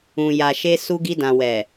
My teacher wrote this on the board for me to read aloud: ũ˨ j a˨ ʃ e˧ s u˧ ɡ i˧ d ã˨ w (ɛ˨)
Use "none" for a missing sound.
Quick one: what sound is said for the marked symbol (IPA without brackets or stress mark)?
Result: ɛ˨